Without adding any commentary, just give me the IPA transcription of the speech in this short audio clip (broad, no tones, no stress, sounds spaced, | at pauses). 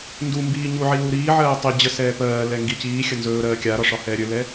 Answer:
n d u m b iː ɲ u ʕ i l u ɾ iː ʕ ɜː tˤ i d͡ʑ ə s ɛː p ɜː l ɛ ŋ ɡ i c iː xʲ ə n z ɵː ɾ ɜː kʲ a ɾ ɒ ʂ ɒ h ɛː ɾʲ ɵ l ɛ